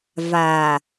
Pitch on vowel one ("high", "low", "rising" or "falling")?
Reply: low